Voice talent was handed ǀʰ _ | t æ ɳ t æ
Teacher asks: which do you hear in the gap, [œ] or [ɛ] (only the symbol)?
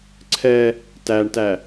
ɛ